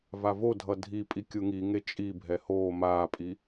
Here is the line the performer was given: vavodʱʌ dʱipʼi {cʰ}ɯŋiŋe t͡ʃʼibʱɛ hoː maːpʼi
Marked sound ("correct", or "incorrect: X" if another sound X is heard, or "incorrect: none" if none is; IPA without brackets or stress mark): incorrect: kʲ